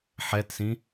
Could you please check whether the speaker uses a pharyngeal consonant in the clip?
yes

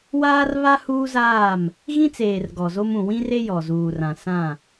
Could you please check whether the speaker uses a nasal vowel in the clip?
yes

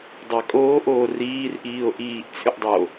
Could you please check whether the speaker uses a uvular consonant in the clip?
no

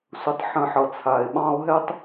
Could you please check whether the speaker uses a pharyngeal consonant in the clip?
yes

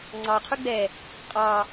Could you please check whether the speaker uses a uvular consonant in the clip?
yes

